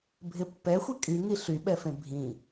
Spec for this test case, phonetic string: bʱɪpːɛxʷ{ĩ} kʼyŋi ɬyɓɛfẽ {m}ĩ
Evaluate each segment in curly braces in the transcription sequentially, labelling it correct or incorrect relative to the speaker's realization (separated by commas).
incorrect, incorrect